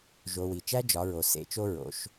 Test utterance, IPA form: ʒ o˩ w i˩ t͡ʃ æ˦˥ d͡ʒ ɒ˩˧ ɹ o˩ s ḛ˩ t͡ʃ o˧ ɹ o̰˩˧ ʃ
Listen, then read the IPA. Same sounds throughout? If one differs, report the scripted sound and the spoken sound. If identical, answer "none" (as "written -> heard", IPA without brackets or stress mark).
none